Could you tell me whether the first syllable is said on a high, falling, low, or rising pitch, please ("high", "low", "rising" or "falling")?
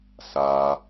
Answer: high